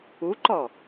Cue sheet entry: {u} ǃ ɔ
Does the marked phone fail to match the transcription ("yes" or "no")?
no